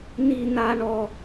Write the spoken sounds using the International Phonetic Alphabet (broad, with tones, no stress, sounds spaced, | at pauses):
n i˦ n a˦ ɳ ɔ˦